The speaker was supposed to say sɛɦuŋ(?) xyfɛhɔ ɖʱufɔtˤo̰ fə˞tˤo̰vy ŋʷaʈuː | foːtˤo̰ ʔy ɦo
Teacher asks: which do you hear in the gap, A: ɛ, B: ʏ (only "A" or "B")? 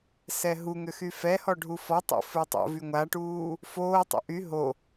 B